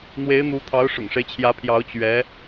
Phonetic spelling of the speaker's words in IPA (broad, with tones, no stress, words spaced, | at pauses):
n̪we˧˥ɪ̯n̪u˧˥t̪ʰɑ˧˥ʊ̯ ʂʊ̰˨˩ŋʂe˦ɪ̯t͡ɕʰjä˧˥pʰjɑ˧˥ʊ̯ t͡ɕɥɛ˧˥